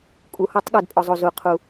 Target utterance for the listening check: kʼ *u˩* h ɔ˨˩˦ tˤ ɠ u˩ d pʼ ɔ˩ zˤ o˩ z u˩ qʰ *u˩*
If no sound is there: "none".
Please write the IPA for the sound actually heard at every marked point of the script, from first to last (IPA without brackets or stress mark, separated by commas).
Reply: u˩, u˩